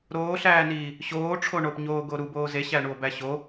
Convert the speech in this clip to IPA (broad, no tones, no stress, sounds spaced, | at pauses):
ɾ oː ɬ æː n iː | ɕ oː ʈ͡ʂʰ o ɳ o p ɲ oː ɡ o ɾ u b oː z e ɕ æ ɳ u o̯ b æ ɕ o